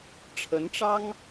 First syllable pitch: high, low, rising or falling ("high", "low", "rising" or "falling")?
rising